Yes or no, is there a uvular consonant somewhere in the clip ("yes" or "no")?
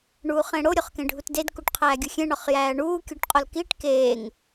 yes